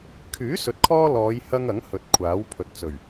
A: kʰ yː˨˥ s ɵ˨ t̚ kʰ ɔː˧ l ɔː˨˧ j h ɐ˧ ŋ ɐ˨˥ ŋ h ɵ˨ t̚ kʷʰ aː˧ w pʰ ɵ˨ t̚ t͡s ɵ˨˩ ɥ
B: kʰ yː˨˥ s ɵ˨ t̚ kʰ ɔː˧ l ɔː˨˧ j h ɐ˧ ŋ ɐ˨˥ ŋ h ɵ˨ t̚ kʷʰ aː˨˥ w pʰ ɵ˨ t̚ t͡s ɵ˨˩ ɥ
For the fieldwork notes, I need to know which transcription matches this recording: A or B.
B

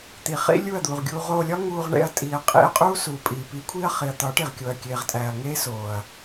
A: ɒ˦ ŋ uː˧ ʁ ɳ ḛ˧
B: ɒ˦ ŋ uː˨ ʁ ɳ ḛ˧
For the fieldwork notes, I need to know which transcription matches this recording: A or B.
A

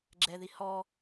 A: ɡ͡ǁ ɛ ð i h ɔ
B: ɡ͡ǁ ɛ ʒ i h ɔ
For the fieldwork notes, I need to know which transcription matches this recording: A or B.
A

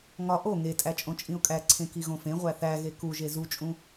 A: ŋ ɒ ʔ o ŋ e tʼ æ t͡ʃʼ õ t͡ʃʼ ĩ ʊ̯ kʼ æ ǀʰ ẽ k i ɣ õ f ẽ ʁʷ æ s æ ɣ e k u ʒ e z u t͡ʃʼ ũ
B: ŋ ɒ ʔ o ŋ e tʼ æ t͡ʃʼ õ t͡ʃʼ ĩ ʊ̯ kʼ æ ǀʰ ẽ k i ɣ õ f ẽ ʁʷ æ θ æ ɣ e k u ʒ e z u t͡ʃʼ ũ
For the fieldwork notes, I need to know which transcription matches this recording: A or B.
B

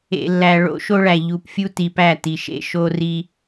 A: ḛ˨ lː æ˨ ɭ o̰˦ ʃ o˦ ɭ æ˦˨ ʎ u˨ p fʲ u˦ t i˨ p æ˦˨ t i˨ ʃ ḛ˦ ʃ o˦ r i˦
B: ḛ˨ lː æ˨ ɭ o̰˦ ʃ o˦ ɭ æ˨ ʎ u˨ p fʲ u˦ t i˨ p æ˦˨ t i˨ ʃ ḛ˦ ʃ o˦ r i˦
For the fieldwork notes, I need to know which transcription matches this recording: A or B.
B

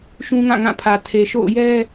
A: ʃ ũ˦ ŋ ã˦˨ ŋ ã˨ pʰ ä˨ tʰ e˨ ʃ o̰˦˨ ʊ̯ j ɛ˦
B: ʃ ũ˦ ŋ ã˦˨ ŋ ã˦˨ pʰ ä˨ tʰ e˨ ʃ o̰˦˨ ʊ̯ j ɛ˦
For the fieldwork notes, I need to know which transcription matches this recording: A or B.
B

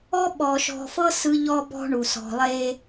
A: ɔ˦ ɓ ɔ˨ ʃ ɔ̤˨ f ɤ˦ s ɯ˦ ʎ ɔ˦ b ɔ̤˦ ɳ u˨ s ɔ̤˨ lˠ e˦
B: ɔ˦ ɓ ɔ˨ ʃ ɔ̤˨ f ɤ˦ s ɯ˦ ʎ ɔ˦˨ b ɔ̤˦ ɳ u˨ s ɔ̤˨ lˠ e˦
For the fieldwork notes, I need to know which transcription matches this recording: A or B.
A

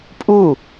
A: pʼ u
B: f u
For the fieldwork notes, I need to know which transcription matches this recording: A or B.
A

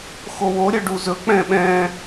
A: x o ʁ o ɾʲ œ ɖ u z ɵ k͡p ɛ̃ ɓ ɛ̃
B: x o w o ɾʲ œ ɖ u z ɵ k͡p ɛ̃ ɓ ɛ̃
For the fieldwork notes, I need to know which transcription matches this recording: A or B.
B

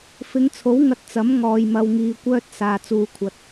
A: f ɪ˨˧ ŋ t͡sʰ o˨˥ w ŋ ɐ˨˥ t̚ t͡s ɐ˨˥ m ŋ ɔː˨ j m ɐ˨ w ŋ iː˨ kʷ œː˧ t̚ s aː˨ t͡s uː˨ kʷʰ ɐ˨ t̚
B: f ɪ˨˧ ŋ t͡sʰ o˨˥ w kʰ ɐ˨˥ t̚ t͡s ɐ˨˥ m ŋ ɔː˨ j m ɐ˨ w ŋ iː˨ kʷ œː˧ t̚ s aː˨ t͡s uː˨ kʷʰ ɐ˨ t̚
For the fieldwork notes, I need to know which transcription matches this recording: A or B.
A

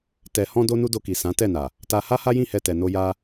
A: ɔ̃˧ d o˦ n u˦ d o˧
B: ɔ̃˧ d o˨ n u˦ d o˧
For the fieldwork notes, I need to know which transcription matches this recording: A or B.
A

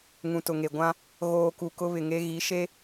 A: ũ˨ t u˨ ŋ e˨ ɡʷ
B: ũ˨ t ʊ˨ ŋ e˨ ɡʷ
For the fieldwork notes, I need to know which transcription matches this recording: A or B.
B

